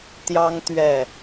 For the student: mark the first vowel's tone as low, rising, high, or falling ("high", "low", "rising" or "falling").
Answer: high